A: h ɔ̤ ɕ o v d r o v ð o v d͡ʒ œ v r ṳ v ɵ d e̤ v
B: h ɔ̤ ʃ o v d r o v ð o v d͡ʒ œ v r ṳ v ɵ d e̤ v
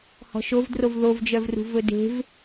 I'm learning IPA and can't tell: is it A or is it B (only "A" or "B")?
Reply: B